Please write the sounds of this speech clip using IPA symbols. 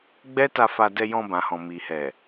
ɡ͡b ɛ˦ t a˧ f a˧ d ɛ˧ j ɔ̃˧ b ã˨ h ɔ̃˨ m i˨ h ɛ˨

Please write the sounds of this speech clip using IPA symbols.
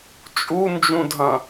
t͡ʃʼ u n d͡ʒ ũ dʱ ɐ̃

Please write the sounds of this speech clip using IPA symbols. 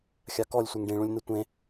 xʲ a k ɔ lʲ sʷ e ŋ ɖ ĩ ɭ ũ lʲ n ɯ tʷ ẽ

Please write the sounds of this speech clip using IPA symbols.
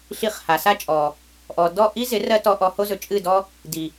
ɬ i˧ χ h a˨ s a˦ t͡ʃʼ ɔ˨ | ʔ ɔ˨ d ɔ˦˨ ʔ i˦ z ɪ˨˦ r ɜ˦ t ɔ˧ ʔ ɔ˧ h o˦ z ɵ˨ t͡ʃʼ ɨ˦˨ d ɔ˦ | d i˨

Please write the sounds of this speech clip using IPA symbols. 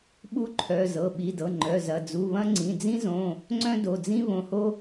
ɓ u˥ ǃʰ œ˩˧˩ z ɤ˩˧˩ ɓ i˩˧˩ d ɤ˩˧˩ ŋ͡ǃ œ˩˧˩ z ɐ˩˧˩ d͡z u˩˧˩ β ɐ̃˥ ŋ͡ǀ ĩ˩˧˩ d͡z ĩ˥ z õ˩˧˩ | ŋ͡ǀ œ̃˥ d o˩˧˩ d͡z ĩ˥ β õ˩˧˩ h o˥

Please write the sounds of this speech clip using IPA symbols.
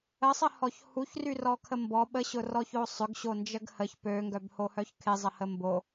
ə sˤ ə h ɔ ç h u ç r y r ɔ kʰ ə m b ɔ ɓ ə ɕ ʊ r ɔ ç o sˤ ʏ ɡ ɕ o n d͡ʒ ə ɡ h ə ç p ø ŋ ɡ œ b h o h œ ç kʰ ɪ zˤ ə h ə m b o

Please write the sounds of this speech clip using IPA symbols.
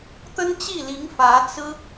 t̪ ə˥ n t͡ɕ i˥˩ l i˧˥ ŋ f ä˧˥ t͡s ɹ̩˥

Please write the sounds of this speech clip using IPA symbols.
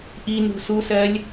ʔ i n ṳ s u s ɜ lʲ

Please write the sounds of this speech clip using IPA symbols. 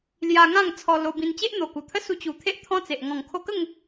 l j a˧ ŋ ã˥˧ ŋ t͡sʰ ɔ˧ l o˧ b ĩ˧ n t͡ɕ e˦ ʔ n̪ o˨˩ k u˨˩ t̪ʰ ə˦ s u˧ t͡ɕ u˨˩ t̪ʰ e˦ ʔ t̪ʰ ɔ̃˦ t͡s e˨ ʔ ŋ ɔ̃˨˩ ŋ kʰ o˧ k ə˥˧ ŋ

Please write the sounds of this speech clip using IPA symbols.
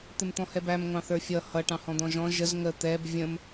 t̪ ɪ m t̪ ɔ̃ h ɛ b æ m ŋʷ ɑ̃ θ ə˞ fʲ ʌ h ʌ ʈ ɑ̃ h ɔ̃ d̪ ɔ̃ ʒ ɔ̃ ʒ ə z ŋ ə t̪ ɛ b vʲ ə̃ m

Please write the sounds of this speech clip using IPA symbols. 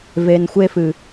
v e˨ n xʷ e˧ f ɨ˨

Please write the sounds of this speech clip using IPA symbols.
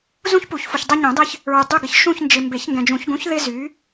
z ũ˦ ç p u˨˩˦ ç f u˨ ç dˤ e˦ ɲ ũ˨˩˦ dˤ e˦ ç | ɹ y˨ dˤ y˦˨ ɡ ɪ˨ ç ʃ ũ˦˨ ç n d͡ʒ ɪ˨ m b e˨˩˦ ç ŋ ɡ ɛ̃˨ d͡ʒ ũ˨˩˦ ç ɡ ũ˨˥ ç ð ɪ˦ z y˨˥

